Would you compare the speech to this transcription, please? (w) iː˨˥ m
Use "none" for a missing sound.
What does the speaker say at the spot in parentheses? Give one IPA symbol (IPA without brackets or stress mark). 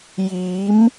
j